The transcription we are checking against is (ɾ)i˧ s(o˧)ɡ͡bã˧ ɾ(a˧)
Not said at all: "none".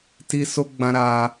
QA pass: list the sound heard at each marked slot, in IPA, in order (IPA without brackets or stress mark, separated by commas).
t, o˧, a˧